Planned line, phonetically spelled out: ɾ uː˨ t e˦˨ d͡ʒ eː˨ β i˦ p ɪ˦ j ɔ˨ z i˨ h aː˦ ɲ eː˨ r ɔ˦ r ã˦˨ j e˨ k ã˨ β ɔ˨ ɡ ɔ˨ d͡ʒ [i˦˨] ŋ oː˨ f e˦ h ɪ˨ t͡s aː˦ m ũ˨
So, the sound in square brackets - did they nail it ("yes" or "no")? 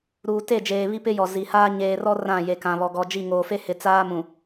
yes